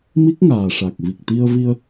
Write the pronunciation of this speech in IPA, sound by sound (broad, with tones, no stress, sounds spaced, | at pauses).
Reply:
m i˦˥ k̚ ŋ aː˨˩ ʂ a˨˩ k̚ v i˨˩ k̚ t̪ i˧ ə̯ v i˧ ə̯